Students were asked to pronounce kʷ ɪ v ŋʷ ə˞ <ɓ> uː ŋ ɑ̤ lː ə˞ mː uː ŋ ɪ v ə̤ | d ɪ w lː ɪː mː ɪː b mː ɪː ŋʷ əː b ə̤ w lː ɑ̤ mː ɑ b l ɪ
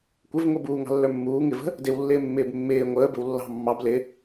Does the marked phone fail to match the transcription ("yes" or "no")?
yes